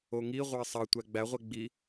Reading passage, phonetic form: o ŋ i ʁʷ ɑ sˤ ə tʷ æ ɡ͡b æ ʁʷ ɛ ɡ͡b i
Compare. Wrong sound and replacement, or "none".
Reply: ə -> ɑ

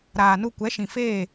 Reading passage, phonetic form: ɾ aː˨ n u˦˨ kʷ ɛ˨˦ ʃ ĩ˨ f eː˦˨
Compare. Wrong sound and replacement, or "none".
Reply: none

